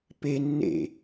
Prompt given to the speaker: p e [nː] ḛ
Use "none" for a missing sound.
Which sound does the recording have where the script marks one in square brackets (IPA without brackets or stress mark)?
nː